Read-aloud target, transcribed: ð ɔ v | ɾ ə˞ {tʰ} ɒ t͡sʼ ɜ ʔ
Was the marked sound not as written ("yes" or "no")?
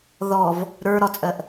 yes